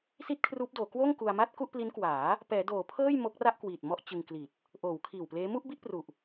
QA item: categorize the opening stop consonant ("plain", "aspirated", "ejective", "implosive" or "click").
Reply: plain